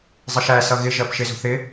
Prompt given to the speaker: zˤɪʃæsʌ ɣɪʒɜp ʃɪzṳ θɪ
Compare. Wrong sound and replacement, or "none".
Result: none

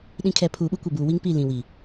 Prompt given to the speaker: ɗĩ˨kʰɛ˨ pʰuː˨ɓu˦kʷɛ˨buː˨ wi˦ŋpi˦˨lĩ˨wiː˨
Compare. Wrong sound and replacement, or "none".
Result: none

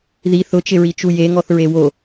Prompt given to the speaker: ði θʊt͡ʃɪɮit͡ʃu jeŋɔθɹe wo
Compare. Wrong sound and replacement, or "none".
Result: ɮ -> ɹ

